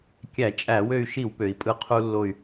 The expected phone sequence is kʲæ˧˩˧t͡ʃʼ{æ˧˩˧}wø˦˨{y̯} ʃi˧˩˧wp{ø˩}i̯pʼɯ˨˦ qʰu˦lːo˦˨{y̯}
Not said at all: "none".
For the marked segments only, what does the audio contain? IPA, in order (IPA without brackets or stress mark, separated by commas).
æ˧˩˧, y̯, ø˩, y̯